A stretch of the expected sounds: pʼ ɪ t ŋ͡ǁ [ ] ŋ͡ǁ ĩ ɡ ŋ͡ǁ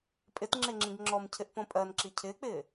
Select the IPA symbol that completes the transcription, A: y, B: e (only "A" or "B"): B